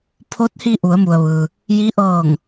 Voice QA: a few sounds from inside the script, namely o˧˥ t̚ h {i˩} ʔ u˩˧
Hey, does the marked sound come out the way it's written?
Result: no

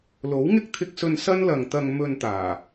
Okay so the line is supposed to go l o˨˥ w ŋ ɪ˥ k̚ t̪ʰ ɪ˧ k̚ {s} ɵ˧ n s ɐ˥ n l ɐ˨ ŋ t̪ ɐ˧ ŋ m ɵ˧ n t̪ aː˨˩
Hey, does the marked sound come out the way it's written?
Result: yes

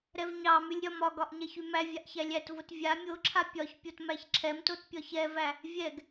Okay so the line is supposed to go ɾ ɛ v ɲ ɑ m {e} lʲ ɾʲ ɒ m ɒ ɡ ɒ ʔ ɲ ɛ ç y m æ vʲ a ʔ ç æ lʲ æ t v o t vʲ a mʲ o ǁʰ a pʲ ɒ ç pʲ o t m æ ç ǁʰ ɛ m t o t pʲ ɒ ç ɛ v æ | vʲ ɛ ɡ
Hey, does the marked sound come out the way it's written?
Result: no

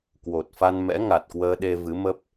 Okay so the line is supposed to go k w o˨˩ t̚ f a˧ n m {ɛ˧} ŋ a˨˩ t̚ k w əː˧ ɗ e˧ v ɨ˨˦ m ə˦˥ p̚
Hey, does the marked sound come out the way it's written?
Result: no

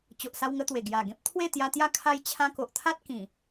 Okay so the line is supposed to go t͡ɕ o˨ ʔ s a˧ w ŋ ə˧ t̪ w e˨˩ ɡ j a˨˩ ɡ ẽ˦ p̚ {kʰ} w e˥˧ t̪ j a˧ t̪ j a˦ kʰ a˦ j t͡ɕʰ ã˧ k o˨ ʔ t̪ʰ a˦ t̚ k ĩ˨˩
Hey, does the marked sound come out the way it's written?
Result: no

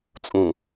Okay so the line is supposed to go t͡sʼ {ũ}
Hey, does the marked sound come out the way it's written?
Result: yes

